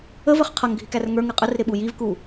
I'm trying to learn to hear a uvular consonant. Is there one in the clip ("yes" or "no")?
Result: yes